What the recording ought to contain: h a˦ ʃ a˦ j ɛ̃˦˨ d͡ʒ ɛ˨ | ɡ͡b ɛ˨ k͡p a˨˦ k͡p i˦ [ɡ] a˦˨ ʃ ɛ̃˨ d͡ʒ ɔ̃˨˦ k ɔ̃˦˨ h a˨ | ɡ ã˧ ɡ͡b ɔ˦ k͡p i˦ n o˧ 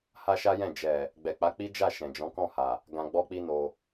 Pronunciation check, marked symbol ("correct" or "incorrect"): incorrect